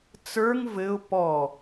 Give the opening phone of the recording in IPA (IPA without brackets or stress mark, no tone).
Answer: t͡s